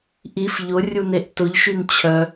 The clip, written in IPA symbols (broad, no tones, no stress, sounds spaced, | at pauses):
ʔ i f ʎ ʊ rʲ u n e ʔ t ʊ ʎ ʃ y n t͡ɕʰ œ